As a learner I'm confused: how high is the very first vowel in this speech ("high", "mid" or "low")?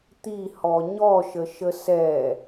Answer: high